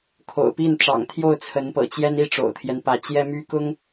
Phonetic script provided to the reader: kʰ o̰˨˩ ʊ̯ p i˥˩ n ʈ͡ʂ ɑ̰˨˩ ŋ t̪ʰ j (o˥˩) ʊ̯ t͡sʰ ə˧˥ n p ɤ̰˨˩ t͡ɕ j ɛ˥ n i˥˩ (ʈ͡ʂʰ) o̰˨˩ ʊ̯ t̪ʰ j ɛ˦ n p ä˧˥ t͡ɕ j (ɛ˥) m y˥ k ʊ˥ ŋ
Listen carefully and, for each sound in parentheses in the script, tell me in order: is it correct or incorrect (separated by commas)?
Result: correct, incorrect, correct